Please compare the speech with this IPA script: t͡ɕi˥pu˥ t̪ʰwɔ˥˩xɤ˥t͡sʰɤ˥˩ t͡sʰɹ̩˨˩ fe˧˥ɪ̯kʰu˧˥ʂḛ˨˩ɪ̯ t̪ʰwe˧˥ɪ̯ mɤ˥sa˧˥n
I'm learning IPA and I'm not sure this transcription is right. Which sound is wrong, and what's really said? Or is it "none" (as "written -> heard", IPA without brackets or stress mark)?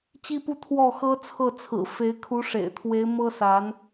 none